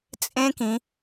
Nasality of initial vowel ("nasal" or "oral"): nasal